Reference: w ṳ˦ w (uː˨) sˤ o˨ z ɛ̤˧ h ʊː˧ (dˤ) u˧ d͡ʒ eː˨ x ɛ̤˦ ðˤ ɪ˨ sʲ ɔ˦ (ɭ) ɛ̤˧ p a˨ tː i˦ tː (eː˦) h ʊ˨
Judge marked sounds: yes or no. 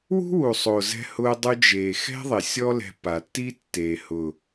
no, yes, no, no

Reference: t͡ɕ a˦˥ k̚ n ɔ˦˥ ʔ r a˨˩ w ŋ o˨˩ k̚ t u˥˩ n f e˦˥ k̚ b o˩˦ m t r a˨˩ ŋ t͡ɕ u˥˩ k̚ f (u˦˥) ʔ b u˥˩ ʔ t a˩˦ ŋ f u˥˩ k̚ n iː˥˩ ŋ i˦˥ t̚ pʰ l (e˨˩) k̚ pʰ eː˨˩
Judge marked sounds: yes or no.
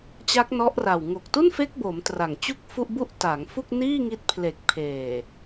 no, yes

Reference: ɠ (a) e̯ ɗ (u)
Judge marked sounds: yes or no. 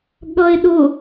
no, no

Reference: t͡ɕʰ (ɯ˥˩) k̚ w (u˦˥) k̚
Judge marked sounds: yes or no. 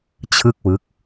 yes, no

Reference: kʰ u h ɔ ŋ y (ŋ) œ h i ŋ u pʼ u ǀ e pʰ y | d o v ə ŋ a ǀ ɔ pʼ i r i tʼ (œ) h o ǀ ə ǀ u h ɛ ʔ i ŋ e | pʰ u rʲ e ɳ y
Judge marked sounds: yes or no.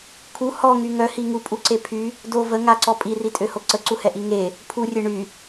yes, no

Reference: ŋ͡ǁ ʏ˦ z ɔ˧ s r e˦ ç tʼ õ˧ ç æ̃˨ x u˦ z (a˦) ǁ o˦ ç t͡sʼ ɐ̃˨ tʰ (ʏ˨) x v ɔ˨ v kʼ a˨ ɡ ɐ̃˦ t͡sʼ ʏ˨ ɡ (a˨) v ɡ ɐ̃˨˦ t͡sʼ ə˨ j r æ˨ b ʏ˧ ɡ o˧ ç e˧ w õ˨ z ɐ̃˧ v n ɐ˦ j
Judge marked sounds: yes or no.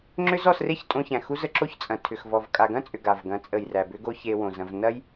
no, yes, yes

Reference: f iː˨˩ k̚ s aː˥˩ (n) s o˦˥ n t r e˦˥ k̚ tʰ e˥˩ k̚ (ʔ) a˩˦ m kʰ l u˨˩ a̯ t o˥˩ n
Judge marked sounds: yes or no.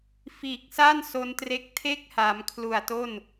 yes, no

